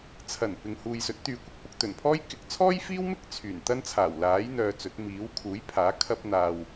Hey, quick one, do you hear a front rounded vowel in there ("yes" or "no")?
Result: yes